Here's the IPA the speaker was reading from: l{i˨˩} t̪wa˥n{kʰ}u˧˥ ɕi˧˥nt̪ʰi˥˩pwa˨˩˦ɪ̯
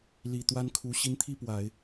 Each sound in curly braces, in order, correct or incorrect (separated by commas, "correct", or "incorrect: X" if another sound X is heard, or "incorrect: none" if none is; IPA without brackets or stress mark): correct, correct